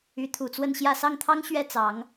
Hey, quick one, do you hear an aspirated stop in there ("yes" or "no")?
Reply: yes